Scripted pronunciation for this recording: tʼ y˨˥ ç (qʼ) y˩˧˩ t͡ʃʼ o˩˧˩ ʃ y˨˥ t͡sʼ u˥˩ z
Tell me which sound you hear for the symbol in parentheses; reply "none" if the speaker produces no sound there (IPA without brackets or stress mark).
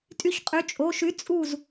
qʼ